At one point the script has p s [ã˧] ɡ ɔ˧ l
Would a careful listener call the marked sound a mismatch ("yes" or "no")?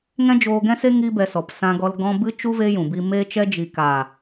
no